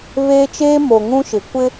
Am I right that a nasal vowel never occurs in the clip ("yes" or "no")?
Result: no